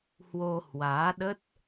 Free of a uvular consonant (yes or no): yes